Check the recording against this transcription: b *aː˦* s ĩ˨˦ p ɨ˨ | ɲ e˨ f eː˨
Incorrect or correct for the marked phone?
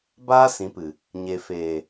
correct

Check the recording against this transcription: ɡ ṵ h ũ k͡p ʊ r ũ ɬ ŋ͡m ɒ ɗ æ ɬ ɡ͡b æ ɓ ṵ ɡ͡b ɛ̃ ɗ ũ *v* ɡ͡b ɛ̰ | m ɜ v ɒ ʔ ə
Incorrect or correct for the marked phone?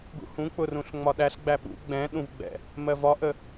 correct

